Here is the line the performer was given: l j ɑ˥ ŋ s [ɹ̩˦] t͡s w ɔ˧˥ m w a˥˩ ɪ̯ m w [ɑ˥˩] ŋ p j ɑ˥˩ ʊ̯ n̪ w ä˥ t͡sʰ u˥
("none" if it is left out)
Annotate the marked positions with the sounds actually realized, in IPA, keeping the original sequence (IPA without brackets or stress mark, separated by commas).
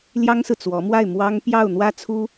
ɹ̩˨, ɑ˥